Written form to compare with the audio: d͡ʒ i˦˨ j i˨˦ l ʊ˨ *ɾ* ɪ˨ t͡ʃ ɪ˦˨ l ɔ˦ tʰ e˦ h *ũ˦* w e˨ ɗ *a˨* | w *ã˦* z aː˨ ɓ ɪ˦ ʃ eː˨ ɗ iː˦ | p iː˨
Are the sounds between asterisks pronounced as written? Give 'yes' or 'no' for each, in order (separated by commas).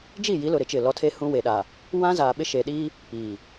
yes, yes, yes, yes